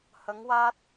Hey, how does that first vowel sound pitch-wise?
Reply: rising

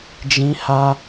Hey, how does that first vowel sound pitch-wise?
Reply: high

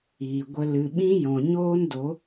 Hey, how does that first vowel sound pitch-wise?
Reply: low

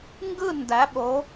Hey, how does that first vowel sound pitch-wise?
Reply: falling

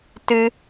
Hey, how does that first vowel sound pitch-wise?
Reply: high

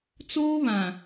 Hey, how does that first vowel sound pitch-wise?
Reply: high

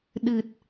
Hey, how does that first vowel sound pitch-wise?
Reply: low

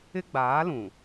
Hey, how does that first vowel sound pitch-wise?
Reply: high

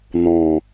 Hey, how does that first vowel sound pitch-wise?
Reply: low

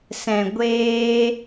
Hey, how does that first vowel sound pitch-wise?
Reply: low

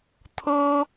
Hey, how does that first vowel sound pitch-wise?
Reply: high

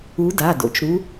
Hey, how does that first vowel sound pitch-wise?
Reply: rising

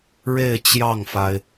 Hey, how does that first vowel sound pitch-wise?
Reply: falling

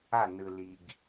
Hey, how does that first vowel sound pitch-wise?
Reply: falling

